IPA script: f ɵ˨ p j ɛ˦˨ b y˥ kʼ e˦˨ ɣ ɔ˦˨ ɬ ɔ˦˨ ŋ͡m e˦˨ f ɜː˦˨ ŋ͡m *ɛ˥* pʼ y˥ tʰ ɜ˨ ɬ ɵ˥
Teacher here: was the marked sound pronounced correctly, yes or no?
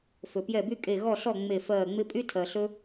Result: no